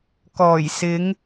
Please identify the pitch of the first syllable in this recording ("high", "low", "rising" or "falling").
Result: low